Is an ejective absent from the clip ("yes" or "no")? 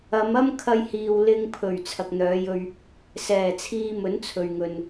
yes